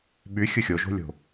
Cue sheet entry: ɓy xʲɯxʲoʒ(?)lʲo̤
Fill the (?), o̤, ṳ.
o̤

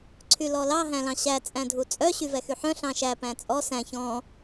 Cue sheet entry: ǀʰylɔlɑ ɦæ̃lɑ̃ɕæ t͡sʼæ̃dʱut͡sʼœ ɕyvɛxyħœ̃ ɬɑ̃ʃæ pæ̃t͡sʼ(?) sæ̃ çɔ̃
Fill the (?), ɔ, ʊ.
ɔ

